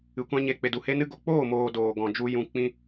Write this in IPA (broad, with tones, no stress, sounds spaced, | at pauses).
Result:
ɨ˨ kʷ ã˦ ɲ e˧ k͡p e˨ d u˨ h e˦ n ɨ˦ ɡ o˨ k͡p oː˦˨ m oː˨ d oː˨ ɡ ɔ̃˨ d͡ʒ u˧ j ũ˨ k͡p ĩ˧